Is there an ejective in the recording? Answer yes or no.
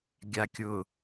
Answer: no